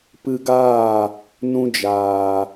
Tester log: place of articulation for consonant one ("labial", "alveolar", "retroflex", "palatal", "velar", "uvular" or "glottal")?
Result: labial